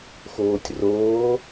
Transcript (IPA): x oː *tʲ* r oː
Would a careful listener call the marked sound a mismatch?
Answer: no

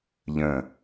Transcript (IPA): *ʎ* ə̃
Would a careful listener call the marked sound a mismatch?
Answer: no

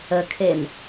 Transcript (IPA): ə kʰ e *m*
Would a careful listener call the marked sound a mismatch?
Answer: no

